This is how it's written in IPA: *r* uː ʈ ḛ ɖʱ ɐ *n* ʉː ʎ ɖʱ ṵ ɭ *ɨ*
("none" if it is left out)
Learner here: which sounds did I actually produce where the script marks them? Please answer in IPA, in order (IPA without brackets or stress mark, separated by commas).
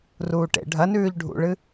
r, n, ɨ